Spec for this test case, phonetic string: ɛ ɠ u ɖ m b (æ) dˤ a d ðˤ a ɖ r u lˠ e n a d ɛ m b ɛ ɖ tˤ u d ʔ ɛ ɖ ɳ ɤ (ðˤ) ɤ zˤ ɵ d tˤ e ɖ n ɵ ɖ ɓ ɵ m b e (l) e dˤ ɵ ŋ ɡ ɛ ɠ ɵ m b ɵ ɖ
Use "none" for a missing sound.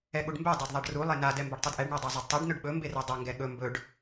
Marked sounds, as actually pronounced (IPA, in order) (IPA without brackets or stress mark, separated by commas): ɛ, dˤ, r